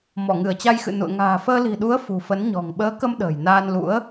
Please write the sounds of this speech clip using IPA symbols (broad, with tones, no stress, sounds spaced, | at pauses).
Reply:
m ɔ˧˩ ŋ ɨ˧˩ ə̯ t͡ɕ a˧ j x ɨ̰˧˨ n ṵ˧˨ ə̯ ŋ a̤ː˨˩ f əː˧ l i̤˨˩ ɗ u˨˦ ə̯ f ṳ˨˩ f ə˨˦ n ɲ ɔ̤˨˩ ŋ ɓ əː˨˦ k ə˧ m ɗ ə̤ː˨˩ j n aː˧ n l ṵ˧˥ ə̯